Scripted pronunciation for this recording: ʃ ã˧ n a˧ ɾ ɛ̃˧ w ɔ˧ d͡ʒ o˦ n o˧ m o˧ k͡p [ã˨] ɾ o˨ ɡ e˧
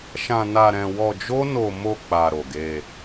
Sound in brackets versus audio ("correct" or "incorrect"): incorrect